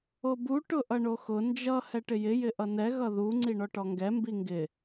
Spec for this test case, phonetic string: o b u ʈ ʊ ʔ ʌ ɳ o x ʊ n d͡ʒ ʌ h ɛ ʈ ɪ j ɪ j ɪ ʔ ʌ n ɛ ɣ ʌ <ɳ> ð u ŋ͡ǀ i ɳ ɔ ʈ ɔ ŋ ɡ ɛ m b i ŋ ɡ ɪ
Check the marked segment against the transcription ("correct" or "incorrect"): incorrect